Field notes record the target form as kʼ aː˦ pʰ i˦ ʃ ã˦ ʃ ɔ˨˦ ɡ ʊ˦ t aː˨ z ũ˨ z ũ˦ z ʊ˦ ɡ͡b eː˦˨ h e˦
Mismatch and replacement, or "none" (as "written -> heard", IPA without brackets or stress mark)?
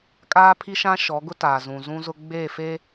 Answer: h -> f